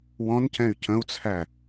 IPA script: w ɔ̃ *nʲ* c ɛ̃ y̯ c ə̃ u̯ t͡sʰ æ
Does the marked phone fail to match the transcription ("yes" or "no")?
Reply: yes